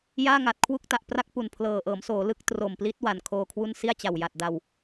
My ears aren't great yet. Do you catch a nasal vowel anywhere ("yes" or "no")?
no